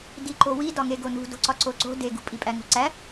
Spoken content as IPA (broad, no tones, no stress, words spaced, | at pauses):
diǃowidɒ ŋeɡonṳ do̤ǀɒǀoǀo̤ deɡṳ pʼipʼæŋo̤ǀæ